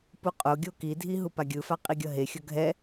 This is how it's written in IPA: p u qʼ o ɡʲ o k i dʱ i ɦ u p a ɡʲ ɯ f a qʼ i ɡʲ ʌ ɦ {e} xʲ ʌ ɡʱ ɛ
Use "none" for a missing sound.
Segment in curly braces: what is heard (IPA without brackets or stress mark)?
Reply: e